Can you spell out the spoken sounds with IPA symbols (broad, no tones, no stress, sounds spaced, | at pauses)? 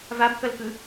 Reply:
v a b k ʌ l k ɯ